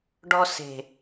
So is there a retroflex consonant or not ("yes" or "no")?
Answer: yes